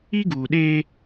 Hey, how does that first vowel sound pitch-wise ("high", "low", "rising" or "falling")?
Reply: high